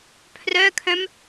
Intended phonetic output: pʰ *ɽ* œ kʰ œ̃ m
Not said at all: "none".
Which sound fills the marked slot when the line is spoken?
r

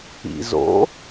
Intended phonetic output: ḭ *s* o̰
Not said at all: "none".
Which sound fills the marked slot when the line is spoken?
z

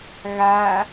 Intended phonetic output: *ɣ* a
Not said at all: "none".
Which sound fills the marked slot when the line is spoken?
ɣ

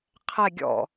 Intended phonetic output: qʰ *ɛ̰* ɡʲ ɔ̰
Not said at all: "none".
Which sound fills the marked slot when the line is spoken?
ɛ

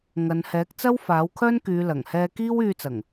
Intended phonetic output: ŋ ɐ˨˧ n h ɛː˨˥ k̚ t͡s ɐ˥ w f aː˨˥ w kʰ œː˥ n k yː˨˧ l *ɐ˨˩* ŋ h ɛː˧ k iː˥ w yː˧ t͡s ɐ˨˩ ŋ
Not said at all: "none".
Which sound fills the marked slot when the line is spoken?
ɐ˨˩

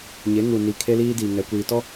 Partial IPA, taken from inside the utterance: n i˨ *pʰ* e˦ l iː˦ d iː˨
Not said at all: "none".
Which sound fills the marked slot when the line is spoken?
kʰ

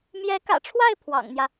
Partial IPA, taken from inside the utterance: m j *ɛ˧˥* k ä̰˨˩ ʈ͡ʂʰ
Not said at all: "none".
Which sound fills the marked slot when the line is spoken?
ɛ˧˥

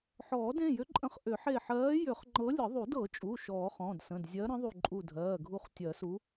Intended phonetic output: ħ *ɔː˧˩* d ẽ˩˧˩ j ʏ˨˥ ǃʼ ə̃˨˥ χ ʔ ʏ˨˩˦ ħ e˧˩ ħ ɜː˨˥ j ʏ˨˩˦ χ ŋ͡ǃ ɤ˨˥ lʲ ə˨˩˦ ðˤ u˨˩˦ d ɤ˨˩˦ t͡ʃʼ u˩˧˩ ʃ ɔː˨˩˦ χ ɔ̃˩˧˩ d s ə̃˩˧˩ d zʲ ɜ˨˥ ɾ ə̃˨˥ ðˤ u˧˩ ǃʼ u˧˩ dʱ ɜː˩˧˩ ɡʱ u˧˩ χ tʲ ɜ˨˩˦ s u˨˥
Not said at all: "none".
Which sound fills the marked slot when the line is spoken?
ɔː˨˩˦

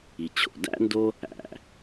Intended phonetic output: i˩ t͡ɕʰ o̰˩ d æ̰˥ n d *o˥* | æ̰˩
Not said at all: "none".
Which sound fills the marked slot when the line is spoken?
o˥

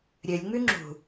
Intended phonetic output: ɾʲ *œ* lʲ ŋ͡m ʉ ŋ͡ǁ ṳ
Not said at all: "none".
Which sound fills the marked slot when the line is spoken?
ɵ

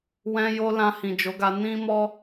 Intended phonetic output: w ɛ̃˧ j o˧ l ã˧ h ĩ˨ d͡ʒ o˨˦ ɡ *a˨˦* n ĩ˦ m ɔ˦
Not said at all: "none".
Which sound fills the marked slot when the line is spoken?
a˧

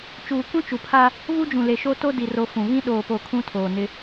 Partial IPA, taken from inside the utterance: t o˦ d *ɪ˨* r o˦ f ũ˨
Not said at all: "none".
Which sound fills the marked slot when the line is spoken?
i˨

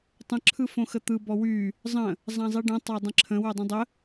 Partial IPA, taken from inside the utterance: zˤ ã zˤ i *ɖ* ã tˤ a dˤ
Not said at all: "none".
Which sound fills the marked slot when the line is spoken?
ɖ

